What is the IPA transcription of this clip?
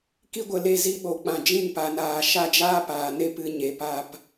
ki˦ɡʷə˨le˦˨ zi˦ɓo˨k͡pã˧ d͡ʒĩ˦˨npa˨naː˨ ʃa˦d͡ʒaː˦paː˨ ne˦pɨ˧ ɲe˨pa˦˨p

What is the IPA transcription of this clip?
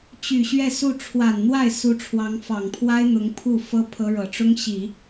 t͡ɕy˨˩ ɕɥɛ˥˧su˥˩ ʈ͡ʂʰwa˨˩nn̪wa˥˩ɪ̯ su˧˥ʈ͡ʂʰwɑ˧˥ŋfɑ˨˩ŋ pʰwa˥ɪ̯n̪ʊ˧˥ŋ pʰu˥˩fɤ˥ pʰɤ˥ ɻɤ˨˩ʈ͡ʂʊ˥ŋɕi˨˩˦

